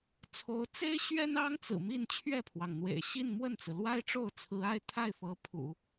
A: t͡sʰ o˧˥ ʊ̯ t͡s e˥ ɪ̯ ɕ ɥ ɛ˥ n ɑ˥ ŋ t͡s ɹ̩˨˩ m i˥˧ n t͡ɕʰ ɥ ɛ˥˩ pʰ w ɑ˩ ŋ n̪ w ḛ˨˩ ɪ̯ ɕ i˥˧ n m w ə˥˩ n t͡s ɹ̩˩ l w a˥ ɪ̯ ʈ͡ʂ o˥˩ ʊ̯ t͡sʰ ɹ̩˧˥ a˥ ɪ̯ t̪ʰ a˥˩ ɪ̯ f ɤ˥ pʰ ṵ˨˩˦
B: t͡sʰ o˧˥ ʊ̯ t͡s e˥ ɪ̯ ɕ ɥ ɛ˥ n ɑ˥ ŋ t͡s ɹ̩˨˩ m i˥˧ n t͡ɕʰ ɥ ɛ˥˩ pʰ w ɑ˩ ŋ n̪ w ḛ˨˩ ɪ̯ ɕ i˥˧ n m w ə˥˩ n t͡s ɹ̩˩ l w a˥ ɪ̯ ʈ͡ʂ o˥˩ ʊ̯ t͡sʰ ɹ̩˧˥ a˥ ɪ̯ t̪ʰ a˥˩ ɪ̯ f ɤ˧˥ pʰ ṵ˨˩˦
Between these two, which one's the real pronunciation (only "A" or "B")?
B